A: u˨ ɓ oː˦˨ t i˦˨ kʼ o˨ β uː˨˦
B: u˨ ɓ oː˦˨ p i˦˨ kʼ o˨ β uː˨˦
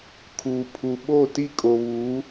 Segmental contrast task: A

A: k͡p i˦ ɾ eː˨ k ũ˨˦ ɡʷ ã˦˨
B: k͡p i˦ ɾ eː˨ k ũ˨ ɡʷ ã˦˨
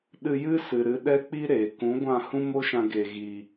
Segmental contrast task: A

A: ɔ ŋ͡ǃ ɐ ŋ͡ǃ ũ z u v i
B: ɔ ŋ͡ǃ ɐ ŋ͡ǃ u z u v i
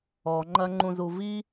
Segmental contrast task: A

